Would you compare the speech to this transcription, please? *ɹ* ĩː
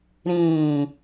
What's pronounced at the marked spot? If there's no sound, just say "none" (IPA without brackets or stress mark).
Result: ɾ